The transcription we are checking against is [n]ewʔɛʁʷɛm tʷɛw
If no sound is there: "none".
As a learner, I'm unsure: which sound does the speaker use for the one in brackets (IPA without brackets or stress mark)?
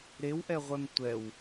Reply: ɾ